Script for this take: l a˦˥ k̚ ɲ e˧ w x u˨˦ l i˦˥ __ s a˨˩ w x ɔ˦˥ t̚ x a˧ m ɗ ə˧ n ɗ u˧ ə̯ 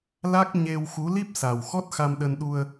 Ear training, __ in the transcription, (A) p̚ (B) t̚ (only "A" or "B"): A